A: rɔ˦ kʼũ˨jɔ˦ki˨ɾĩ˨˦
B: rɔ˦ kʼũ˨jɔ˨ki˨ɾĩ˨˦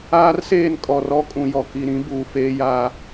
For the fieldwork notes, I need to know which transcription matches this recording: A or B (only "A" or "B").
B